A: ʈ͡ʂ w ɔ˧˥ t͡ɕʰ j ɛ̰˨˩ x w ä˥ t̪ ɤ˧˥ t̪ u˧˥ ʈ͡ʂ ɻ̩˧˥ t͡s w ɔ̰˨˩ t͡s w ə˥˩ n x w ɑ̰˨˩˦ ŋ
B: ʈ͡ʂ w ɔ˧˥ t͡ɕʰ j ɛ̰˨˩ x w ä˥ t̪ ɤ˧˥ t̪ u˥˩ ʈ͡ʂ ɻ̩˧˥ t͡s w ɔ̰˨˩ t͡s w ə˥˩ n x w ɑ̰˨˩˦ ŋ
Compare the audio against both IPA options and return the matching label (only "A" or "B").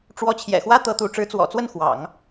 A